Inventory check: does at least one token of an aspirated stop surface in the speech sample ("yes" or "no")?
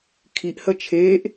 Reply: yes